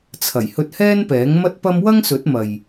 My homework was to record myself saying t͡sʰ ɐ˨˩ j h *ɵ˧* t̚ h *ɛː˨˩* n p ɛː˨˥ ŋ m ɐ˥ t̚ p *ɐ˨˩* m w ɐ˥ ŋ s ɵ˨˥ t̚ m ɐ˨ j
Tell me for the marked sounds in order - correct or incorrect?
correct, incorrect: ɛː˥, incorrect: ɐ˥

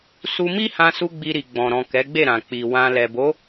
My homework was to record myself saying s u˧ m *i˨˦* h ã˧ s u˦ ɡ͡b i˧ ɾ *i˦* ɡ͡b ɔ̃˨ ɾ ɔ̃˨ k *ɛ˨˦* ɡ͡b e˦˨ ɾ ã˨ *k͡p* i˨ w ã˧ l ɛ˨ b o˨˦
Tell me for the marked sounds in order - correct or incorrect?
incorrect: i˦, incorrect: i˨, correct, correct

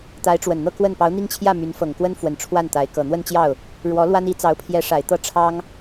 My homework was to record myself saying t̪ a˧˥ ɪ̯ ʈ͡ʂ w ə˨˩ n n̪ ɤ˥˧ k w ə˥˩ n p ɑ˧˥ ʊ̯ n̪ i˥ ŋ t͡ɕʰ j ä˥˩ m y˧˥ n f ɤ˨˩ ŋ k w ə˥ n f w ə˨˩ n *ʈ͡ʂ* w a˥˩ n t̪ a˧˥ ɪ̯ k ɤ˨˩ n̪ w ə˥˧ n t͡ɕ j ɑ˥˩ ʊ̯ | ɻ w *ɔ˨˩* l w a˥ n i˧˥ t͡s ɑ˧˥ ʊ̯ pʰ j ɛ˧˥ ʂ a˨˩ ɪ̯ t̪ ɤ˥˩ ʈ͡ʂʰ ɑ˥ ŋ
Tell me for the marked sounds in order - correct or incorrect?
incorrect: ʈ͡ʂʰ, incorrect: ɔ˧˥

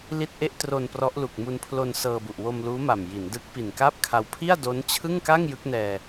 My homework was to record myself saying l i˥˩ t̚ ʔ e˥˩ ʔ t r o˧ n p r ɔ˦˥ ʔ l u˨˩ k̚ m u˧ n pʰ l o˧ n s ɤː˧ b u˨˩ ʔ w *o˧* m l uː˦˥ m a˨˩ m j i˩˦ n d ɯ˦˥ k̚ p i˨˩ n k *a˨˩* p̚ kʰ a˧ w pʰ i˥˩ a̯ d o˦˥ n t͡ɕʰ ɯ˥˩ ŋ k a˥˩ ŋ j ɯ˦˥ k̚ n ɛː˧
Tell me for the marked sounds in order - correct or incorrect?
correct, incorrect: a˥˩

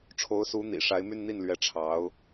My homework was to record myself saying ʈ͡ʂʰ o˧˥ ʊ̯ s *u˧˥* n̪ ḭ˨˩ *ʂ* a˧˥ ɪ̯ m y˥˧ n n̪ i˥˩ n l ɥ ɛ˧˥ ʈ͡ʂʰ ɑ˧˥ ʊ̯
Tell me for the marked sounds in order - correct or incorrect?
correct, correct

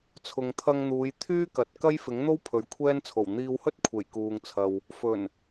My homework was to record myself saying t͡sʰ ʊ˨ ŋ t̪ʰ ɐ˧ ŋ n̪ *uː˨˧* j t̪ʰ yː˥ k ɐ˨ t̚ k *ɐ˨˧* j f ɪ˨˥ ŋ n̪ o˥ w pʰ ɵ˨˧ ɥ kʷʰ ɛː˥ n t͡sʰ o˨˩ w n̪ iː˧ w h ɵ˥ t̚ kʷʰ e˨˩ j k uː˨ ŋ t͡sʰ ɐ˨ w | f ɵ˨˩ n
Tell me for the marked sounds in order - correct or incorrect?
correct, incorrect: ɐ˥

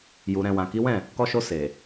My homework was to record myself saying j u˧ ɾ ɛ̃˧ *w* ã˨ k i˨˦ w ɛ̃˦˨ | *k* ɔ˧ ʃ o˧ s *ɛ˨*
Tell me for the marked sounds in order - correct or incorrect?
correct, correct, incorrect: e˨

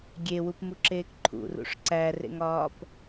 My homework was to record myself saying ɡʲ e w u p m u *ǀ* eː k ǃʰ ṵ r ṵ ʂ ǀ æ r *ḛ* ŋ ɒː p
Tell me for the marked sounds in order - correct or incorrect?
incorrect: ǁ, correct

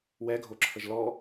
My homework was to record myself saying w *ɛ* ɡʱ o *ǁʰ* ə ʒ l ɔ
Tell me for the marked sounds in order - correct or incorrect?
correct, correct

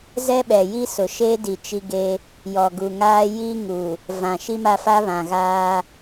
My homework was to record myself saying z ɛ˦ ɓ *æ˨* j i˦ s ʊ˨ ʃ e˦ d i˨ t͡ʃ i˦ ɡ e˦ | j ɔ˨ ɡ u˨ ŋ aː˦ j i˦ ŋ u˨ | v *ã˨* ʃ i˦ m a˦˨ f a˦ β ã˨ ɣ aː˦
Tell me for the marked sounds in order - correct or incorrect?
incorrect: ɛ˨, correct

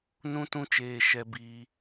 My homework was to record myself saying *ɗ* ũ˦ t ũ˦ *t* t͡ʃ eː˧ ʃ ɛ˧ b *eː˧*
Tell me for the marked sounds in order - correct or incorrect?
incorrect: n, incorrect: none, incorrect: iː˧

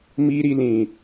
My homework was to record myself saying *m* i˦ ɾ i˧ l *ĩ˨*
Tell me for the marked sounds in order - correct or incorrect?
correct, correct

